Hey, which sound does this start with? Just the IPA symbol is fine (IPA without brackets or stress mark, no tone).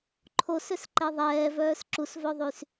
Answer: ǃʰ